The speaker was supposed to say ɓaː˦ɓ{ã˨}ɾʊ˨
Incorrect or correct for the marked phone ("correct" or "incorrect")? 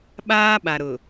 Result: incorrect